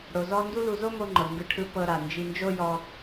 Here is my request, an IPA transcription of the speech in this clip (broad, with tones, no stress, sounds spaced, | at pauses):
ɽ o˩ z ɔ˧ n d u˥ l u˧ z o˥ m o˧ ŋ͡ǃ ɤ˩ ŋ ɡ ɯ˧ ʈʰ ɯ˧ p ɤ˧ ɾ a˩ n d͡ʒ i˧ n d͡ʒ o˥ j ɔ˧